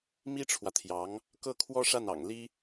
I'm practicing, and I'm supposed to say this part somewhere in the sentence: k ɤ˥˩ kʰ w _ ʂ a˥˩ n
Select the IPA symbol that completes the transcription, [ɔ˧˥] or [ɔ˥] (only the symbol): ɔ˥